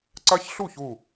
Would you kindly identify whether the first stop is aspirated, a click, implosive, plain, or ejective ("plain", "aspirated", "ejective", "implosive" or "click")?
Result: click